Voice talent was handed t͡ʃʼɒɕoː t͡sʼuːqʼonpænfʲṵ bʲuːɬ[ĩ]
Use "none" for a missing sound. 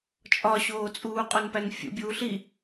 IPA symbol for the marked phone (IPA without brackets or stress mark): i